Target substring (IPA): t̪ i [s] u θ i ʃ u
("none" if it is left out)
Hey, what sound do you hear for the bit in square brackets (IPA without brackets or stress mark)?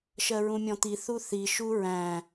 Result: θ